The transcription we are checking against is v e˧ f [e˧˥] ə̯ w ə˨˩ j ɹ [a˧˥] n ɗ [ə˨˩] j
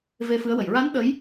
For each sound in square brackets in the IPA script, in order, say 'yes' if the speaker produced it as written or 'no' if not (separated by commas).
no, yes, no